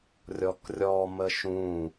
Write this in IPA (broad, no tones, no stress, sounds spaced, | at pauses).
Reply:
rʲ ɔ k rʲ ɔ m ə ʃ ũ